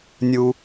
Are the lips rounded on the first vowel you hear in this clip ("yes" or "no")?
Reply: yes